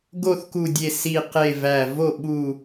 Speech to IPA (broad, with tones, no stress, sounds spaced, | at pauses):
ɡ o˥˨ θ k u˧˩ dʲ e˧˩ s i˧˩ q e˧˩ v æ˧˩ v o˥˨ ɓ u˧˩